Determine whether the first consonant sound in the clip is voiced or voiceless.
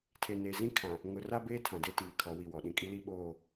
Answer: voiceless